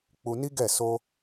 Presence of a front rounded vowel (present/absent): absent